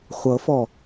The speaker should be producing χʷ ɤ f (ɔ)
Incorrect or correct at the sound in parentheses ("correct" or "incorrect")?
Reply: correct